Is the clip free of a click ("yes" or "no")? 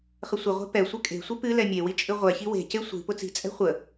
yes